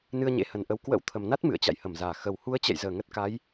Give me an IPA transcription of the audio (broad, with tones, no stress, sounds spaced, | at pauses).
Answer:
n ɨ˧ ə̯ ɲ ḛ˧˥ h ə˨˩ n ʔ ə˨˦ w k w ə̰˧˥ w t̪ʰ ə˨˩ m n a˦˥ t̚ m ɨ̰˧˨ ə̯ t͡ɕ a̰˧˨ j h ə˧˩ m z aː˧˩ x ə˨˩ w h u˨˦ ə̯ t͡ɕ ɛ̰˧˨ j z əː˧˩ ŋ ə˦˥ t̚ k a˨˦ j